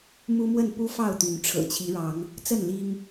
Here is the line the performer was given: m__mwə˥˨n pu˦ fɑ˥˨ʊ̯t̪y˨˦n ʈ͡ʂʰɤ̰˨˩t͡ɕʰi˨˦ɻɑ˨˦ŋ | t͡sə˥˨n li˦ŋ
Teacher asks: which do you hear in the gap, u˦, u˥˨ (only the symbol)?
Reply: u˦